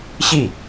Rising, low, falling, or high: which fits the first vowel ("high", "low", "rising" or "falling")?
falling